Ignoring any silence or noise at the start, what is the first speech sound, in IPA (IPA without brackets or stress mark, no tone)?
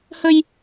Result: h